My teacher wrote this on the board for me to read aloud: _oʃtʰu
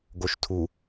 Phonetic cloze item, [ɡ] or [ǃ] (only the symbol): ɡ